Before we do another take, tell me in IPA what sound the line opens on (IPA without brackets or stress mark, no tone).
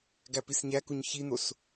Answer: ɡ